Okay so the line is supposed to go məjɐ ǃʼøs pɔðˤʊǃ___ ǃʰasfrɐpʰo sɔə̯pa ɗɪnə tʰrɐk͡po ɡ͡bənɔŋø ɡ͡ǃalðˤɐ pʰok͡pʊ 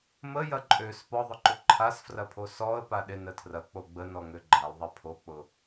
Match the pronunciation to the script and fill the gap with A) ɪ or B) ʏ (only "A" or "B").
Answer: B